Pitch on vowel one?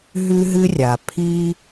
high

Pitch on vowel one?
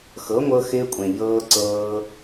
rising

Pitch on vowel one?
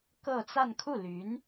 falling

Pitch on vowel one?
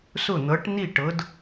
falling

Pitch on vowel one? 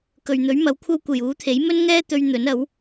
low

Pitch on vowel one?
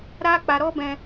high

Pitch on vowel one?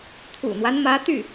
low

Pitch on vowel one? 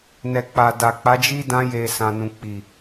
low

